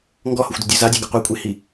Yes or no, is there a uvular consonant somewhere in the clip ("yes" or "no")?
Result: yes